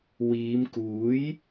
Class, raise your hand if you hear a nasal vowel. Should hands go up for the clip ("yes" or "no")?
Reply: no